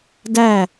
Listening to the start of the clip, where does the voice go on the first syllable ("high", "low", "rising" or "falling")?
falling